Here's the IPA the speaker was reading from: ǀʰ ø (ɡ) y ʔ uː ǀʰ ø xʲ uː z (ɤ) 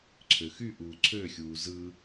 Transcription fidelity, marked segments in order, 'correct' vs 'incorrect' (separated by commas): incorrect, incorrect